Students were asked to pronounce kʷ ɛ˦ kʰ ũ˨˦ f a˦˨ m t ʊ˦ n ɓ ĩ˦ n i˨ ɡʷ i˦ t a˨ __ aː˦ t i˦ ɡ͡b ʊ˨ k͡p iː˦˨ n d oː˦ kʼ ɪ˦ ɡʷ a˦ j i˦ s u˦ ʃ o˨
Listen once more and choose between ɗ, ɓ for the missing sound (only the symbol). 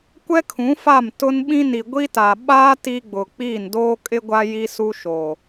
ɓ